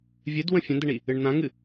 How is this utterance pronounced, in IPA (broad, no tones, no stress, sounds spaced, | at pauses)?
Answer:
vʲ ɨ d w ə̃ fʲ ə̃ n d ə ɳ i | ɨ ɳ n̪ ã ŋ ɨ